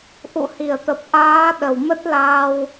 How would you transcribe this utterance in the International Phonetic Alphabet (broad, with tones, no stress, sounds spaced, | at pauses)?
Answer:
ʔ ṵ˧˨ h i˧˩ ə̯ t̪ ə˨˩ p̚ ʔ aː˨˦ ɗ ə˧˩ w m ə˦˥ t̚ l aː˧ w